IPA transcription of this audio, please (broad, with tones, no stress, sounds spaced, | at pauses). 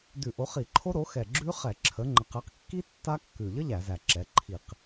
d ʉ˧˩˧ ʔ o˩˥ χ i˧˩˧ ǃʰ o˦˥ ɾ o˩˥ x ɛ˨˩ ɡ͡ǁ ʉ˦˥ χ ɛ˧˩˧ ǁʰ ə˩˥ ŋ͡ǃ ə˩˥ q ɛ˩˥ q kː i˦˥ tː a˦˥ kː ʉ˨˩ ʎ ə˦˥ ʎ æ˧˩˧ z æ˨˩ ǁ ɛ˩˥ ǃʰ i˧˩˧ q